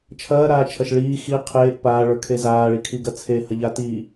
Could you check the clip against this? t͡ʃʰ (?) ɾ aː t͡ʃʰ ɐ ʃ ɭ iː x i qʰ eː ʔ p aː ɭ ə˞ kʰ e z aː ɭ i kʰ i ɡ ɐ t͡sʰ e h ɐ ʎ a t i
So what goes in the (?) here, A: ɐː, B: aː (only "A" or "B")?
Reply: A